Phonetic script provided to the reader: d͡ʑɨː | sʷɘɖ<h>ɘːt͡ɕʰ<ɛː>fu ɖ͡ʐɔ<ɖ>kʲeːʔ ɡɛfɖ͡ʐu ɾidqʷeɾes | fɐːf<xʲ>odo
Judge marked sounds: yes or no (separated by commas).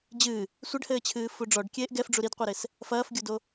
yes, no, yes, no